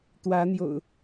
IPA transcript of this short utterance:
t̪ w ä˨˦ n̪ j o̰˨˩ ʊ̯

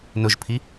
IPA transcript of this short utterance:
n ʊ ʒ pʰ i

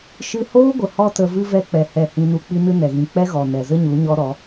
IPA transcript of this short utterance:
ʃ ɨ˧ h oː˦ ɡʷ ə˨ h ɔ˦ t ə˧ v ɨ˦ v ɛ˦ k͡p ɛ˧ h ɛ˦˨ h ĩ˦ n u˦ k͡p i˦ n ɨ˦ n ɛ˨ ɣ ĩ˨ k͡p ɛ˦ ɣ ɔ˨ n ɛ˨ z ə˦ ɲ u˨˦ ɲ ɔ˦ ɾ ɔ˨˦

